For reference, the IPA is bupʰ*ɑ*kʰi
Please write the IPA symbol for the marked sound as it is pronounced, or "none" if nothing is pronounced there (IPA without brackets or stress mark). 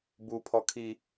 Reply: ɔ